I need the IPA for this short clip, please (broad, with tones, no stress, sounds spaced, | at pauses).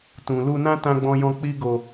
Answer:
t ũ˨ l u˧ n ã˦ t ã˦ ɡ͡b ɔ̃˦ j ɔ̃˦ k͡p i˦ ɡ o˧